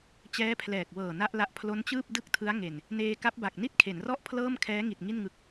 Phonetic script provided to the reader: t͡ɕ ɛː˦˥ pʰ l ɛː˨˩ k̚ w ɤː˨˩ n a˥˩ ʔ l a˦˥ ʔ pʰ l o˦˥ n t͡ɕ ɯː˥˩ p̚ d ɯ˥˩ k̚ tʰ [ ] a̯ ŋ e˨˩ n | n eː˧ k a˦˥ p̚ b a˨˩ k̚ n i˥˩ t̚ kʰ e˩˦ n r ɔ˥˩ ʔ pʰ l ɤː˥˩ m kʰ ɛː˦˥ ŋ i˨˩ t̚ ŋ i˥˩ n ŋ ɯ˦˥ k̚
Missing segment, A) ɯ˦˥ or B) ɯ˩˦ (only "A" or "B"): A